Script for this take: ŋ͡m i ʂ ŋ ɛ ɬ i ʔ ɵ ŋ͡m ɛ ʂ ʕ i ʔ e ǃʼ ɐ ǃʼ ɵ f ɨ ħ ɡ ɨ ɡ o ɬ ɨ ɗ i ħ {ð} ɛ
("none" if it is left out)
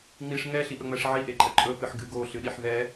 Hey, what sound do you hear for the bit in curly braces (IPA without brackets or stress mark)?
ð